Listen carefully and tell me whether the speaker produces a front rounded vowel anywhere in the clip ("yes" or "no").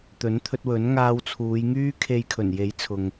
yes